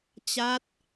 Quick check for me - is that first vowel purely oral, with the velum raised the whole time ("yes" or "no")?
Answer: yes